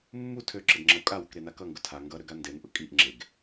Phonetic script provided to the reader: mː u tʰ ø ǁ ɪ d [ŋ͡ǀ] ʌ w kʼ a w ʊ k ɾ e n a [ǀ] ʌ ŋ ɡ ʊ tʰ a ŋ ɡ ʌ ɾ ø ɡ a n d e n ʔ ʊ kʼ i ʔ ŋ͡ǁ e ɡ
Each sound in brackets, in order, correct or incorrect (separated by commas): incorrect, incorrect